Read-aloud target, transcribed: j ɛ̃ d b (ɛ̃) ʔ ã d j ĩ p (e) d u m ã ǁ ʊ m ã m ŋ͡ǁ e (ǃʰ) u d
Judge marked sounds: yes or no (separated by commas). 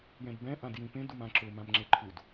yes, no, yes